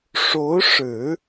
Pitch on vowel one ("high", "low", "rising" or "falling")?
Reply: rising